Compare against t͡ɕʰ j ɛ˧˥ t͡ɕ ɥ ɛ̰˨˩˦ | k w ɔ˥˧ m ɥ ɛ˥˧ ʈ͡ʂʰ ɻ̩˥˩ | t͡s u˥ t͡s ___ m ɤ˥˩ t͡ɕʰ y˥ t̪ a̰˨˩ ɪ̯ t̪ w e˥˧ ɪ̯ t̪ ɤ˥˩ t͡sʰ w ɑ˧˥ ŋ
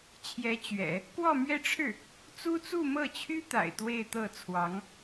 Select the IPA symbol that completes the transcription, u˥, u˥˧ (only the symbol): u˥˧